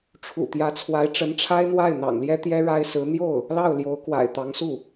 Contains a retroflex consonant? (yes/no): yes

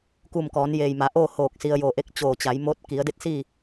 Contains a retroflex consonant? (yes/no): no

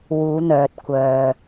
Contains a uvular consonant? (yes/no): no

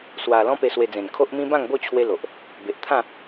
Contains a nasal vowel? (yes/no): yes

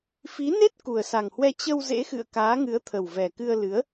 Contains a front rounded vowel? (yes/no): no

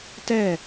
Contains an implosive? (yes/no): no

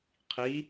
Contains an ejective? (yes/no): no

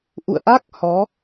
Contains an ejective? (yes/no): no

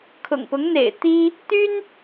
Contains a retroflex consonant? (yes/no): no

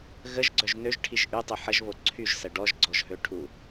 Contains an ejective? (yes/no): no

